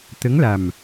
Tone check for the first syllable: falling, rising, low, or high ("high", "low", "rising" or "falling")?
rising